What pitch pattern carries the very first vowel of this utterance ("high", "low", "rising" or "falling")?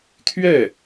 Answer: falling